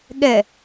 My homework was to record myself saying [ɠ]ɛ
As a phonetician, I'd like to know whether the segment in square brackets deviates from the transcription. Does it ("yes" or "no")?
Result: no